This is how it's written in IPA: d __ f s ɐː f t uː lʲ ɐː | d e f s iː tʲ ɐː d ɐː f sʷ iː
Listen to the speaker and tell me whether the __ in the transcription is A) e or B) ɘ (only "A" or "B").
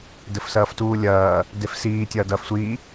B